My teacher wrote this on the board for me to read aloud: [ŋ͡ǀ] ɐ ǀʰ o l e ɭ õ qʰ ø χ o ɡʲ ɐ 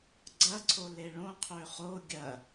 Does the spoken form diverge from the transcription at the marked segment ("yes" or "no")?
yes